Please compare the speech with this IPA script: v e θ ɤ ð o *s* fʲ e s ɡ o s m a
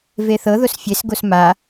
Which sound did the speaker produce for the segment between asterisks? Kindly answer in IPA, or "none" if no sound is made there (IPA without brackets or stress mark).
s